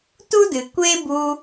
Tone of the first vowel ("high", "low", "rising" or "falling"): high